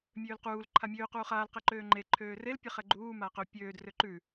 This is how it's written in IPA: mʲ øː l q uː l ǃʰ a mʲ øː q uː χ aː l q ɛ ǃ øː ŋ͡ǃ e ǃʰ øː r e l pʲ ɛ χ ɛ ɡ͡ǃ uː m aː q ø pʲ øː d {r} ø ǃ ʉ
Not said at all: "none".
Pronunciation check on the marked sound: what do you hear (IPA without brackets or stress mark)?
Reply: r